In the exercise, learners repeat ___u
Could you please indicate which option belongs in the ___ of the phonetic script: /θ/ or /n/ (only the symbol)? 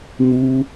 n